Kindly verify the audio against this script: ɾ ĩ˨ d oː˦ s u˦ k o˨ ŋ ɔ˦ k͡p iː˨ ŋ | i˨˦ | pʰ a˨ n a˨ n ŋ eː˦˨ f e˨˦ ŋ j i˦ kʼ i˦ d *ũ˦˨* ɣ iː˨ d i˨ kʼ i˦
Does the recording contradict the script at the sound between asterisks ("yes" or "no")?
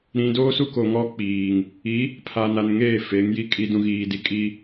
yes